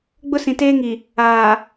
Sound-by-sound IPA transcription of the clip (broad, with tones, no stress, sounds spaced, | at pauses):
ɡ͡b ʊ˦ s ĩ˨ t eː˦ ŋ i˨ | aː˨